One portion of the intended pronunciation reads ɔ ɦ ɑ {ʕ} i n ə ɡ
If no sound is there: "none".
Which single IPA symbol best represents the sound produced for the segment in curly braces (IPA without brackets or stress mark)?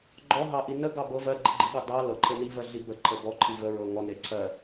ʔ